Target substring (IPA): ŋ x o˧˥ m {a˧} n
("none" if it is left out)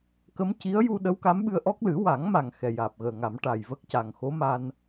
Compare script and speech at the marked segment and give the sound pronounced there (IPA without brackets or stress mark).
a˧